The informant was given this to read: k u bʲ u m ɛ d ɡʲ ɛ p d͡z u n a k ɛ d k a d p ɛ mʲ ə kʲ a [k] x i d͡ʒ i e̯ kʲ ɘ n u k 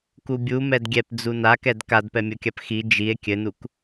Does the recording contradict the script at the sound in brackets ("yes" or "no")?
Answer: yes